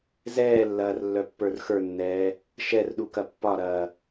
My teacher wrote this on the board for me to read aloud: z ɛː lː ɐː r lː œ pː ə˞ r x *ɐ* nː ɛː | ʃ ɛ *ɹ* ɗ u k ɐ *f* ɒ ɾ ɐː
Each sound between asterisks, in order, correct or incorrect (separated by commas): incorrect, incorrect, incorrect